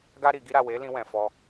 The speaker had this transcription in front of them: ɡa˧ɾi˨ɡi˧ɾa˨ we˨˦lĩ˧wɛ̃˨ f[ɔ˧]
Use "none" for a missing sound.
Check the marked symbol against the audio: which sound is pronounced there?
ɔ˧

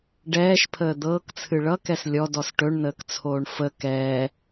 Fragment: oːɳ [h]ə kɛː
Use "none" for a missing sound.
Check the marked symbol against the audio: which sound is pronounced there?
f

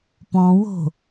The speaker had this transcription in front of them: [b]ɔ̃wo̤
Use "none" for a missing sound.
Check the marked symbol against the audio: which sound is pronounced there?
p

